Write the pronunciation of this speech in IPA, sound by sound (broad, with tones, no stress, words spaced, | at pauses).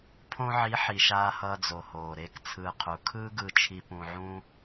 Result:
pʰõ˧ʕi˨˦ ħi˨ʃaː˧ hʌː˧d͡zo˨ hoː˨ɾe˦˨kt͡sʰɯː˧ qʰu˨ kʰɯː˦ɡɯ˧t͡ʃʰi˧ pũ˧ʕũ˦